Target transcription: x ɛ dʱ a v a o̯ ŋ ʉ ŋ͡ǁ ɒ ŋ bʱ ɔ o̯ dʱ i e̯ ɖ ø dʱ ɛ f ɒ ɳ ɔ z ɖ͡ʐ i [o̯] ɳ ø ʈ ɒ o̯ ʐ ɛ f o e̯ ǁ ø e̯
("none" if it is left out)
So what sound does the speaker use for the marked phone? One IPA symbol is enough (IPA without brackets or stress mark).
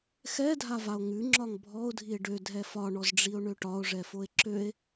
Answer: o̯